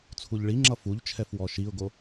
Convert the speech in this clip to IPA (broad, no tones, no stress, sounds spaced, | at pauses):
t͡sʰ u ʎ ɭ i ŋ͡ǁ ʌ f u ʎ t͡ʃʰ ɛ f w ɔ ʃ i ʊ̯ ɡ o